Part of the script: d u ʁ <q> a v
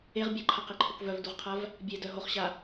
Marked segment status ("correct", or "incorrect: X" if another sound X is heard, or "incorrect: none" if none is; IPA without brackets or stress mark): incorrect: qʰ